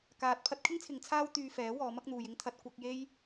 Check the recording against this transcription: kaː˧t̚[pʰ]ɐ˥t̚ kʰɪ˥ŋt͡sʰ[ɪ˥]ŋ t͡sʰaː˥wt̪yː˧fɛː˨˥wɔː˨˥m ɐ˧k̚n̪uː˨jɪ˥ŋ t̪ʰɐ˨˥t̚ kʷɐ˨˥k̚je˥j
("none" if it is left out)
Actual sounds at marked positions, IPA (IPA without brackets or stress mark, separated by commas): pʰ, ɪ˨˧